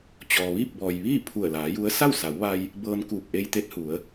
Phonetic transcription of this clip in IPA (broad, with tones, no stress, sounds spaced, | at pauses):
t͡ɕ ɔː˩ ʋ iː˥˨ p̚ b ɔː˩ j ʋ iː˥˨ pʰ u˧˩ ə̯ l aː˩˧ j u˧˥ ə̯ s a˥˨ w s a˩˧ w ʋ a˧ j | b ɤː˧ n k uː˧˩ k̚ ʔ e˧ j t̪ e˧˥ t̚ h u˩˧ ə̯